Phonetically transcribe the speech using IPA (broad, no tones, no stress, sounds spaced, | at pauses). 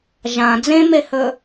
ʒ ã d͡z ẽ m e h ɵ